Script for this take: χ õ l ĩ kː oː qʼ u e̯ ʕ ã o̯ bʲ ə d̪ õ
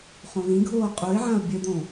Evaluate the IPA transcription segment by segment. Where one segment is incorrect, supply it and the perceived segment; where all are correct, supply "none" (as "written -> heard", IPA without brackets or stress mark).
kː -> ɡʱ